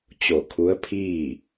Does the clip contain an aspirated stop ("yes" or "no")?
yes